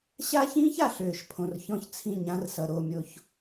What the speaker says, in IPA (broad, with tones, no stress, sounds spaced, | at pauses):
ɕ a˦ ç ĩː˦ ç a˨ ɬ øː˨ ʃ pʰ õ˨ r ç ɔ̃˦ ç t͡sʰ ĩ˦˨ ɲ ã˦ r s ʌ˨ ɾ o˦˨ mʲ o˨ ç